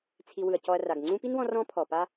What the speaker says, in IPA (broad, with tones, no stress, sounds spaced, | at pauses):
t͡sʰ i˨ w ɯ˩ ɐ̯ c ɔ˨ ɐ̯ r a˩ ɡ ŋ͡ǀ ũ˦ p i˥ n w ɔ̃˦ r ɔ̃˦ pʰ ɔ˩ p a˦